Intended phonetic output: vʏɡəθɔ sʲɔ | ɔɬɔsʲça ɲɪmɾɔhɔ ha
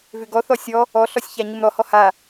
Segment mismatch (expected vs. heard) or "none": ə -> ɔ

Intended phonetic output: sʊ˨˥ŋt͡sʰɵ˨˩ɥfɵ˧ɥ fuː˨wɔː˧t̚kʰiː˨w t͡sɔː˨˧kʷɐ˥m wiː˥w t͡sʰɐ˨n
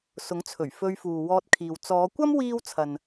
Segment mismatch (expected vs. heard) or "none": none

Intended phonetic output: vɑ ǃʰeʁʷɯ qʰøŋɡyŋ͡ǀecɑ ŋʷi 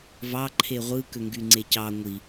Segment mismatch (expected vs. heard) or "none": qʰ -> k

